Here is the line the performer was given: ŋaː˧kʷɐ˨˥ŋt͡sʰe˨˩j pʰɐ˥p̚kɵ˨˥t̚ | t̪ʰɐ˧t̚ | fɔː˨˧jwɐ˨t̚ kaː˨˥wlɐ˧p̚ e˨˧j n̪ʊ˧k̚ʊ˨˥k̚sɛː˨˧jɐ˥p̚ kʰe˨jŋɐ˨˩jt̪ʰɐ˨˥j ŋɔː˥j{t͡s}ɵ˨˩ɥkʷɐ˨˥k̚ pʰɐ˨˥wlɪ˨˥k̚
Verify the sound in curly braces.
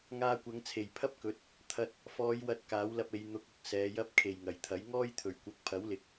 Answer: incorrect: t̪ʰ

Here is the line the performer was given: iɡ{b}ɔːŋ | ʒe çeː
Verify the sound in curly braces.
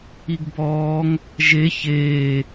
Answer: correct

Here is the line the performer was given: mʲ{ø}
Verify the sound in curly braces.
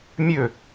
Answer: correct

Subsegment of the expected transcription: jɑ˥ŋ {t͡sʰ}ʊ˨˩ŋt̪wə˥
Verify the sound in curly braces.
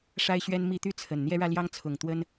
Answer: correct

